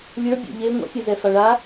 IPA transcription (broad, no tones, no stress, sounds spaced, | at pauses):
lʲ ə˞ bʲ ḛ ʎ e ŋʷ ɛ̰ sʲ ɛ z ɛ f a ɭ a